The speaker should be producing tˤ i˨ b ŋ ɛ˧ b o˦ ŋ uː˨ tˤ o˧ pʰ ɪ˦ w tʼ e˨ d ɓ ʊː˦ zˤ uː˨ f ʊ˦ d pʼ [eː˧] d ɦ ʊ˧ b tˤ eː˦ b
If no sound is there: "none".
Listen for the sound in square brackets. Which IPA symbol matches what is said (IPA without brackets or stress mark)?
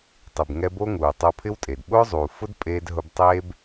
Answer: eː˧